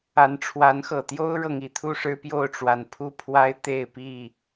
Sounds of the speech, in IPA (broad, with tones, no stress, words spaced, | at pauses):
a˨˦n ʈ͡ʂʰwa˨˦nxɤ˨˩t̪jo˦ʊ̯ɻɤ˨ŋ i˥˨t̪ʰu˥˨ʂɻ̩˦pjo˥˨ʊ̯ ʈ͡ʂwa˨˩npʰu˦pʰwa˦ɪ̯ t̪e˥˨ɪ̯pi˥˨